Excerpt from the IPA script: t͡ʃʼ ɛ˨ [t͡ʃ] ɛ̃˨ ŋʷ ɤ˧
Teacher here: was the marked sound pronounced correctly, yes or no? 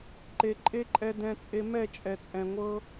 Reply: no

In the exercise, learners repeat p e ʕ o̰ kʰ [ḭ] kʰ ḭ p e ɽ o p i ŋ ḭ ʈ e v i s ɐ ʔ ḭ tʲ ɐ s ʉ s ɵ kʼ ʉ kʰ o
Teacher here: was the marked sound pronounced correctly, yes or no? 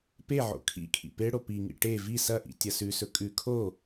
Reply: yes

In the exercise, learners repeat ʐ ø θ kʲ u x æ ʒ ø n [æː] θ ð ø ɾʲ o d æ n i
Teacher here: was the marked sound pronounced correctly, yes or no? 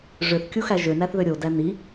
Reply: no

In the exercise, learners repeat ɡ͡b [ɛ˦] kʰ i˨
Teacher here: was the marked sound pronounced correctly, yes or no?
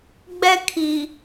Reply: yes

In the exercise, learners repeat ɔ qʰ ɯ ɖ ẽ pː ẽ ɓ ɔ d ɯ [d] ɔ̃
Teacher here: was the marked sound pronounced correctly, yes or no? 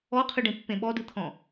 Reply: no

